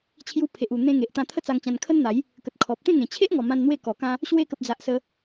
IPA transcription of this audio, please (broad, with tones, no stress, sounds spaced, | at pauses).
t͡ɕʰ j u˧ pʰ e˨ ʔ u˨˩ n̪ ẽ˧ ŋ e˨ ʔ t̪ ã˧ t̪ʰ ə˥˧ t͡s a˧ ŋ t͡ɕ ã˧ n kʰ ə˦ n n̪ a˨˦ j | k ə˨ t̚ kʰ ɔ˨ p̚ t̪ ẽ˥˧ ŋ ẽ˨˩ t͡ɕʰ e˦ ʔ ŋ ɔ˨˩ m ã˧ n n̪ w e˥˧ k ɔ˨˩ k ã˦ | ɕ w e˧ k ə˨ p̚ d͡z a˨ ʔ s ə˧